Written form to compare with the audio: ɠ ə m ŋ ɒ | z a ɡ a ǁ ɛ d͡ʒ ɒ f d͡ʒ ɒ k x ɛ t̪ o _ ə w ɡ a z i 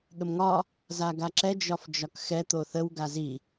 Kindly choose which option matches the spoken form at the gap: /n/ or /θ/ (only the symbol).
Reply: θ